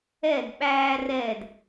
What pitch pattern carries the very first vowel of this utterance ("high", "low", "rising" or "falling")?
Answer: falling